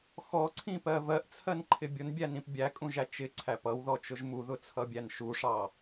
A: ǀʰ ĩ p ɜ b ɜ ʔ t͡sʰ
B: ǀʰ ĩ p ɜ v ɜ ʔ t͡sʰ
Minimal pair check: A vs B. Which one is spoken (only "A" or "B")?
B